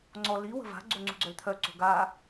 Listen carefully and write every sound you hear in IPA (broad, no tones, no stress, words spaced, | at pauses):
ŋ͡ǀɔ li wə̤va̤ ɡ͡ǀoŋ͡ǀṳɡ͡ǀœlt̪ʰœ ǀo̤ɡa